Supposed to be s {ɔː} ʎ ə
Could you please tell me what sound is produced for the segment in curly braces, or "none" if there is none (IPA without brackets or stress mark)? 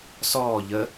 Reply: ɔː